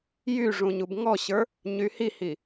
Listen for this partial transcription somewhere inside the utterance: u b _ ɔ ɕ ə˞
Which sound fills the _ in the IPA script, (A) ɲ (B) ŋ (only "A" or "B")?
B